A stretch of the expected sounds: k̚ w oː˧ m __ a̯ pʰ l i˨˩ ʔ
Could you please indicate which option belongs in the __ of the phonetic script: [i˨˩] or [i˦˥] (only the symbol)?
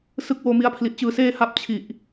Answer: i˦˥